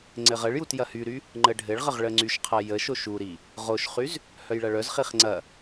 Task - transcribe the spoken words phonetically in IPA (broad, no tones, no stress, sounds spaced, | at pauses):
ŋ͡ǀ ɘ ʁ ə ɭ j u t j ɐ h y ɾ y | ŋ͡ǃ ə ɖʱ ɘ ɭ ʁ ə ʁ ɭ ə ŋ͡ǀ y ʃ qʰ ɐ j ə ʃ o ʃ u ɾ i | ʁ o ʃ χ y z | h œ j ɭ ɐ ɭ œ z χ i χ ŋ͡ǀ ɐ